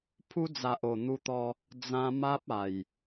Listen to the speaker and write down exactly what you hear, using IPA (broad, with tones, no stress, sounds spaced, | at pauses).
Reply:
pʰ u˧ d͡z a˨ ʔ o˨˩ n̪ u˧ t̪ ɔ˧ | d͡z ã˧ m a˦ p̚ a˨˩ j